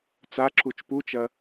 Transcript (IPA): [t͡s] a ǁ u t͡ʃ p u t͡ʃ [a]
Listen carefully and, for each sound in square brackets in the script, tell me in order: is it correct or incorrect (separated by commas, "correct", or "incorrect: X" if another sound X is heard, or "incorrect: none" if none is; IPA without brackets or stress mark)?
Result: correct, incorrect: ɐ